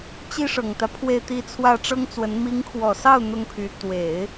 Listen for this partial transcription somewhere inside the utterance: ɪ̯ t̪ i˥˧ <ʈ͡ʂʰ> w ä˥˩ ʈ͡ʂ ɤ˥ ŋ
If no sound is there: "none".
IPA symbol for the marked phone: t͡sʰ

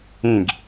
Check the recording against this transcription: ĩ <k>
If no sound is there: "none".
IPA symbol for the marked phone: ɡ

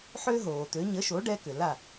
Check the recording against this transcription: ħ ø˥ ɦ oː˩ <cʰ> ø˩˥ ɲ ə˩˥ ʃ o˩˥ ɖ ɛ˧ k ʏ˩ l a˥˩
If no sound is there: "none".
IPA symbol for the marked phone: t̪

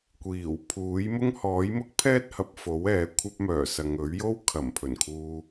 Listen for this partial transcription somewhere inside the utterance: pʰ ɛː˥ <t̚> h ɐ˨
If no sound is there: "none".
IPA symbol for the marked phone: t̚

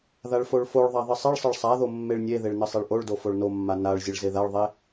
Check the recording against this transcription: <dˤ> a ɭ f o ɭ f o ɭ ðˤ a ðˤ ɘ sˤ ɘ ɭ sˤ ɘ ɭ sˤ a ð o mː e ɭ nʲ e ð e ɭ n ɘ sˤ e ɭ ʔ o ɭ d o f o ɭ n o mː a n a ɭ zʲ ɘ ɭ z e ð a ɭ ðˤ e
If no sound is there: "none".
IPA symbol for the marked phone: ð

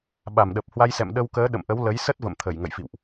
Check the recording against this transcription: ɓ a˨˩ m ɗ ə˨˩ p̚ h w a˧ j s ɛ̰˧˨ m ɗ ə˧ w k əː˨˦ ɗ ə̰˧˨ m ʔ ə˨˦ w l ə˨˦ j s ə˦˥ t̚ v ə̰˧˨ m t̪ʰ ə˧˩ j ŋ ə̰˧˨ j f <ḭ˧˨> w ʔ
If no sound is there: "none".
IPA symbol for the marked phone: ḭ˧˨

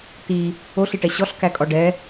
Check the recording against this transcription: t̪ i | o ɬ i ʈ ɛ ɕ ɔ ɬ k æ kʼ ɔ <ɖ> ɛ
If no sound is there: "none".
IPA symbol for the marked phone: ɖ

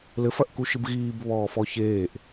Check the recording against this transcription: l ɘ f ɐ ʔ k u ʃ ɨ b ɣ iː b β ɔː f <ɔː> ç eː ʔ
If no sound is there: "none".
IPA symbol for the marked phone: ɔ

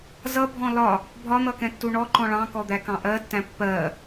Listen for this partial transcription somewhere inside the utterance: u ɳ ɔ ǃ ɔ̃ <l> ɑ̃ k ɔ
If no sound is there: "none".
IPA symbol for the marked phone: ɭ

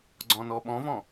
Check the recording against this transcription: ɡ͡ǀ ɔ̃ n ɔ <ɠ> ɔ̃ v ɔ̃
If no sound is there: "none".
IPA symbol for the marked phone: ɓ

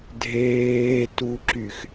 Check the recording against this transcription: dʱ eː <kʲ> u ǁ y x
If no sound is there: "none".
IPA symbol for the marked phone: t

